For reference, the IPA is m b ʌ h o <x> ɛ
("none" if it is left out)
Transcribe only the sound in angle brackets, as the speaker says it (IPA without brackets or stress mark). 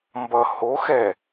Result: x